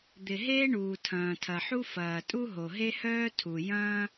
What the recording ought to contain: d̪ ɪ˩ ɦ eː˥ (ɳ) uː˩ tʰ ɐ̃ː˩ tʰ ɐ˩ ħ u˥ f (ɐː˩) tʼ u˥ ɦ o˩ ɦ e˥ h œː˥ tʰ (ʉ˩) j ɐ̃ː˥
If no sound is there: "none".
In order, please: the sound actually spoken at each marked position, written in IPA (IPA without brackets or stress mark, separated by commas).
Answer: ɳ, ɐː˩, u˩